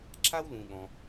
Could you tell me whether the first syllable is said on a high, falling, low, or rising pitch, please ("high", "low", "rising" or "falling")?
high